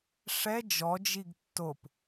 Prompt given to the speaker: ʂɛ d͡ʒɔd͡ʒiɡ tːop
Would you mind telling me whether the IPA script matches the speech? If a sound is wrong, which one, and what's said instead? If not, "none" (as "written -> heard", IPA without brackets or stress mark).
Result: none